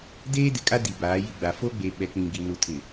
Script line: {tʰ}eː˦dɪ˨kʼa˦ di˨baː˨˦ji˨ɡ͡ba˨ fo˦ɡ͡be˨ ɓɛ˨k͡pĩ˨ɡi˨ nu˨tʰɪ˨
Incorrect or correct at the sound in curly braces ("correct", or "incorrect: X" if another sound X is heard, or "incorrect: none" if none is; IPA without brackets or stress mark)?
incorrect: d